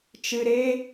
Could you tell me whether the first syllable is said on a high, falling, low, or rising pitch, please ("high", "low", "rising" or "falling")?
low